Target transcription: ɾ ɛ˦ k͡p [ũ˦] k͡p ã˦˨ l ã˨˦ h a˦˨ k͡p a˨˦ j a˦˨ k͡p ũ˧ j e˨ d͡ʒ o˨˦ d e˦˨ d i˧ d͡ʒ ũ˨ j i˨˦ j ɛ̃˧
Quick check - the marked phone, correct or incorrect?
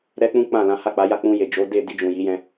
correct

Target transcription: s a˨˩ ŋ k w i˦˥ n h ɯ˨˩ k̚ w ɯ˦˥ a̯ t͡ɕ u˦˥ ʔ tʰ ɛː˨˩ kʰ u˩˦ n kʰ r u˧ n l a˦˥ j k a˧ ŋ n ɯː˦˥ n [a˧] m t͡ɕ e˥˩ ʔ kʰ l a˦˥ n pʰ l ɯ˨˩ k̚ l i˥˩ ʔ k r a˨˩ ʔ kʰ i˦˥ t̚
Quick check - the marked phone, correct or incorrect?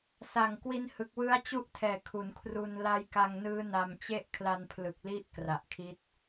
correct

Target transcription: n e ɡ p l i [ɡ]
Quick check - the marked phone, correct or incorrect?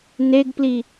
incorrect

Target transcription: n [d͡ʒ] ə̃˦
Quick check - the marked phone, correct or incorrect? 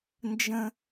correct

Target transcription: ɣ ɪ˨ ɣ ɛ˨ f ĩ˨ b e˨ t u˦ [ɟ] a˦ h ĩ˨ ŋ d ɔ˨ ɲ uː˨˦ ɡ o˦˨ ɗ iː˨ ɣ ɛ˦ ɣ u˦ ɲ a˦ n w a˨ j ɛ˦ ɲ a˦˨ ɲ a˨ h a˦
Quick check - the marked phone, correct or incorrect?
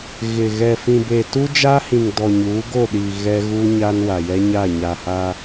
incorrect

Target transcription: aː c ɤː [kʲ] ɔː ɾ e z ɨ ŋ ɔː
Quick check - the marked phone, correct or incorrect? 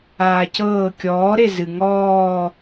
correct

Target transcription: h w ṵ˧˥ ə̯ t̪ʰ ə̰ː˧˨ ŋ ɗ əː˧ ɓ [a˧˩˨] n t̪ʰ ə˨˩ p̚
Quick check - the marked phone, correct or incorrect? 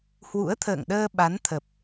incorrect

